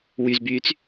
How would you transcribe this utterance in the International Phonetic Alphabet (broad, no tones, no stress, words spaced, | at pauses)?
wyzbyːt͡s